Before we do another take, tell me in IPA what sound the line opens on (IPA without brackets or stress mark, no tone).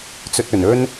t͡s